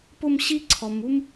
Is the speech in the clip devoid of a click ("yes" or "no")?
no